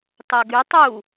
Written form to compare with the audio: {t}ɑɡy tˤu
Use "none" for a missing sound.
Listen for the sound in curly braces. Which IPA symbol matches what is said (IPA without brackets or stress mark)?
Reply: t